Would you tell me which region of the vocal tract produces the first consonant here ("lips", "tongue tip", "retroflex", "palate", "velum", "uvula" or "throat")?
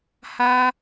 throat